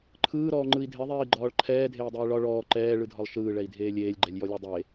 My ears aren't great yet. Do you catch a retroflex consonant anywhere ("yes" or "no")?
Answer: yes